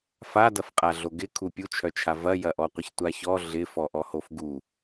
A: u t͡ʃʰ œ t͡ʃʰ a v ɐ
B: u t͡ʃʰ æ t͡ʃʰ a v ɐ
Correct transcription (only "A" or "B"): A